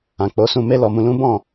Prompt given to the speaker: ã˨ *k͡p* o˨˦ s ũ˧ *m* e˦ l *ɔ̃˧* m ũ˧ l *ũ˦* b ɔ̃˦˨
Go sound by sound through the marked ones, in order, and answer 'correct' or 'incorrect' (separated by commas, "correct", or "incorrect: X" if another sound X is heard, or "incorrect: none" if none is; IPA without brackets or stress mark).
correct, correct, incorrect: ɔ˧, correct